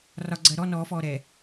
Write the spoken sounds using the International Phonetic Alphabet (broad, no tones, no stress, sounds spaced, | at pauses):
r ɒ ɡ͡ǀ ɜ ɾ ɔ n ɔː f ɔː ɾ ɛː